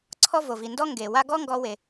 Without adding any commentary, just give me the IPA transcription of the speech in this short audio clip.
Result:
ǀʰɔ˥vo˩vi˩ ndɔ˥ ŋɡe˩wa˥ ɡɔ˥ŋɡɔ˧we˩

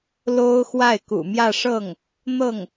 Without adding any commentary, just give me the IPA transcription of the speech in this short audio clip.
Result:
lo˥ʊ̯ xwa˥˩ɪ̯kṵ˨˩mjä˥˧ʂɤ˥˩ŋ | n̪ɤ˥˩ŋ

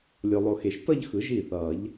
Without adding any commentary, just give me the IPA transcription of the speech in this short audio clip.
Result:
lʲo˨lˠo˨xe˨ʃ tʌ˥˧ʎxɯ˨˩˦ ʒi˥˩θʌː˨˩˦ʎ

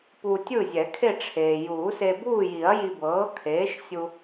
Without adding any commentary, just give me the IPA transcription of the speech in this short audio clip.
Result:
pu˧tʲɯ˥˨zʲɛ˨˩˦ kʰe˥˨ʈ͡ʂʰeː˩ juː˨˩˦se˧buː˥˨ji˨˩˦ɐ̯ ji˧bɤː˩˥ kʰeː˩˥ʃ sʲu˧

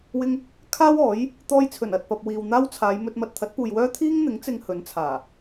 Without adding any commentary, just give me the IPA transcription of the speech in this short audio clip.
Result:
wɪ˧ŋ | kʰaː˥wɔː˨˥j | t̪ɔː˧jt͡sʰɵ˨˩n ɐ˨t̚pɐ˨p̚ wiː˨wn̪aː˥wt͡sʰaː˨˧j mɵ˧t̚ mɐ˨t̚t̪ʰɐ˨˥t̚puː˨jwœː˥ t̪ʰiː˥ŋn̪ɪ˨˥ŋ t͡sɪ˧ŋ hɵ˨˥nt͡sʰaː˨˩

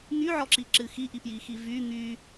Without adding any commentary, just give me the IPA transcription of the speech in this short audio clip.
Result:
ŋyʕɔǁiǁɨ xiʔipji xivy ŋy

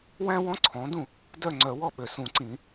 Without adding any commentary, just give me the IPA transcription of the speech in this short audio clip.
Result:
wæ̃˥wɔ̃˥ǀʰɔ̃˩˥dũ˥˩ | dœ˥˩ŋ͡ǀœ˨˩˦wɔ˥˩ɓø˩ sũ˨˩˦ǀĩ˨˩˦

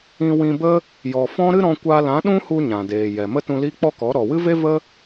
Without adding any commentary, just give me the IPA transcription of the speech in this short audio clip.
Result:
ĩ˧wĩ˧bə˦ | jɔ˨fɔ̃˦ ɾɨ˦ɾɔ̃˧kʷa˧lã˨˦ ɗũ˦hu˧ ɲã˨deː˨jɛ˨ mə˦tũ˧liː˦ k͡pɔ˦kɔ˨˦ ɾɔ˨wɨ˦ve˦və˦

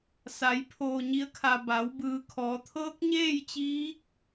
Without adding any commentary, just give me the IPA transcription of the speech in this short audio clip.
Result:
sa˩˧j pʰoː˩ɲi˩˧ə̯kʰa˩ ba˩˧w bɯː˩˧kʰɔː˩˧t̪ʰɤː˧˥k̚ ɲeː˥˨jt͡ɕiː˧˥k̚

